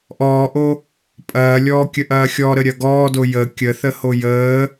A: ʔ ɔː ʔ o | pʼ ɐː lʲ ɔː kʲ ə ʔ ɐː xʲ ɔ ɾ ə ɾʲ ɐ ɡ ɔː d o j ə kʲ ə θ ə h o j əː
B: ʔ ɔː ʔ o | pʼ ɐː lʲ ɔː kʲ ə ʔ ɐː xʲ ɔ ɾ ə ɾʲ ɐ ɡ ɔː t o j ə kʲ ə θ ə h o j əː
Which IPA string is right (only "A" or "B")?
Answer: A